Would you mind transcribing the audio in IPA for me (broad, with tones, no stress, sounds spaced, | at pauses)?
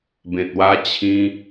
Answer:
b ẽ˨ t̚ w a˧ t͡ɕʰ ĩ˧